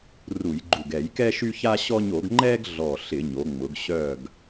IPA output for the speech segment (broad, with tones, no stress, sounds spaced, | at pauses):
r u˧˩˧ j ɡ͡ǃ u˧˩ ɡ ɛ˧˩˧ j k ɛ˦ ʃ y˦ ç a˦ ɕ ɔ˦ ɲ o˧˩˧ ɡ ŋ͡ǃ ɛ˦ ɡ ɮ ɔ˧˩ ɬ ɪ˧˩˧ ɲ o˩˧ ŋ͡m ʊ˩˧ ɡ ɕ œ˧˩ ɡ